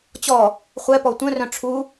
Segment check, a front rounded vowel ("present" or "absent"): present